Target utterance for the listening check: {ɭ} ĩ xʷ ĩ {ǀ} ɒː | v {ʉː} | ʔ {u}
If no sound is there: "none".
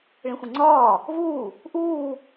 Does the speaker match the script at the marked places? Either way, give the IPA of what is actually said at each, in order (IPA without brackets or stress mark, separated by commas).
ɭ, ŋ͡ǀ, uː, uː